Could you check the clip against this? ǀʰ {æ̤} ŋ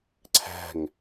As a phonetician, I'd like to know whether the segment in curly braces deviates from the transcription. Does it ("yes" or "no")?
no